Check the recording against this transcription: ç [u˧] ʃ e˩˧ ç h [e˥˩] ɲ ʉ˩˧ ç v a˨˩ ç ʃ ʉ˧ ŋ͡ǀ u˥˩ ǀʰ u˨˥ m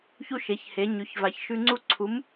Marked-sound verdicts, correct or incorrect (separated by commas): correct, incorrect